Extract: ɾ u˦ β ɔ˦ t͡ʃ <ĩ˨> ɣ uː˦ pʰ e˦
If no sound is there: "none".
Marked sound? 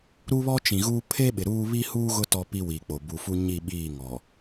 ĩ˨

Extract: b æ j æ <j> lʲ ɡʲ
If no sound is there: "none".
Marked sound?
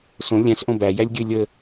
none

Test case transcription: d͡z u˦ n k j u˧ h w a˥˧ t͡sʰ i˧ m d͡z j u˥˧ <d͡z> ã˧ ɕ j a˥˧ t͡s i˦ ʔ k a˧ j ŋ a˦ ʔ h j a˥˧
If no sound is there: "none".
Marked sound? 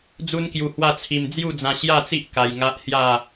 d͡z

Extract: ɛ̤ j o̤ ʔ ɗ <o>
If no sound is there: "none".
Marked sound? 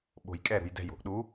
u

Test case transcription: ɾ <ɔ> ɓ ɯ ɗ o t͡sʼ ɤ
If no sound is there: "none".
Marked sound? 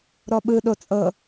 ɔ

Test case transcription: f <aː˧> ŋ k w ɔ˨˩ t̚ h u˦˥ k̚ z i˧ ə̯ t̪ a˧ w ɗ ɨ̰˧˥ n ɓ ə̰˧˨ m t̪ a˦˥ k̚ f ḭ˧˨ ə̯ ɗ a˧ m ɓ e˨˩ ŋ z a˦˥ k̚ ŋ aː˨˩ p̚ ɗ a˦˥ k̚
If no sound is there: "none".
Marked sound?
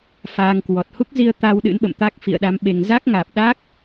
aː˧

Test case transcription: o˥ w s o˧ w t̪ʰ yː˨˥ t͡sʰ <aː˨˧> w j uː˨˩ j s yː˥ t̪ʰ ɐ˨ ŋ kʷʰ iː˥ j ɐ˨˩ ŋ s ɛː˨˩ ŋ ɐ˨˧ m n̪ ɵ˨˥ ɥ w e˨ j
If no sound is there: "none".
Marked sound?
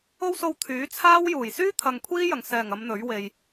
aː˥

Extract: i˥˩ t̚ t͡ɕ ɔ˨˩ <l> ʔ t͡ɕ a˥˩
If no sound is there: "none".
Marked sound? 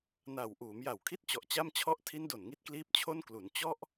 none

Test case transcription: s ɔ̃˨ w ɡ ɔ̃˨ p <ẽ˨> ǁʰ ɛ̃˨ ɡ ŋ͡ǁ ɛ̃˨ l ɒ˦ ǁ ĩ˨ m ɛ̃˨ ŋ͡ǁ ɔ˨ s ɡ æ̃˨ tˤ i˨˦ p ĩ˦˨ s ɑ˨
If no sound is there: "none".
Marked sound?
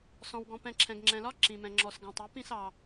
ɛ̃˨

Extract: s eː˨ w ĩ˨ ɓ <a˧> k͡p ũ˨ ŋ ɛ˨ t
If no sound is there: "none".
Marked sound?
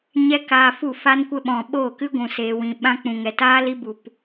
ã˧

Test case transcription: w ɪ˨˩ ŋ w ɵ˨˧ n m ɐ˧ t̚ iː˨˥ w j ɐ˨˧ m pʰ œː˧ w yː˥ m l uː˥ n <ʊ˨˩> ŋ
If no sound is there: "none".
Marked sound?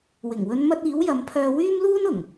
ʊ˨˩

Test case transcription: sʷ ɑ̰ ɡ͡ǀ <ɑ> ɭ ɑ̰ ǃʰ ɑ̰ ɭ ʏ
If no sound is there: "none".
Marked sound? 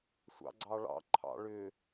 ɑ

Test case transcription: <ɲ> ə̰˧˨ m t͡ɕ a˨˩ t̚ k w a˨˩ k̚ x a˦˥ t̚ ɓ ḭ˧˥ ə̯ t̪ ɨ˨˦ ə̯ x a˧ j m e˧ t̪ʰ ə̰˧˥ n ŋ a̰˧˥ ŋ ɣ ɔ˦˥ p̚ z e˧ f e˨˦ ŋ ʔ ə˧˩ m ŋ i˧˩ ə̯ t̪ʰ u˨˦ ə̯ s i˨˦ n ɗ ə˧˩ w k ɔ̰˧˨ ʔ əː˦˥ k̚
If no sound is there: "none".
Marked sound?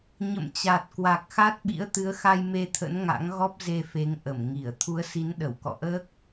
ɲ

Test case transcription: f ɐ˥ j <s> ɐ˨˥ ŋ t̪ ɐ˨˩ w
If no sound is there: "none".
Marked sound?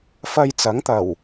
t͡s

